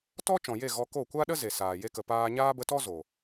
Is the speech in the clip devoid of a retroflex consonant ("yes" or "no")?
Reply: yes